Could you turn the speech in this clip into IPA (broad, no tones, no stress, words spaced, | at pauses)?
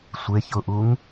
sʷe çʊʔuŋ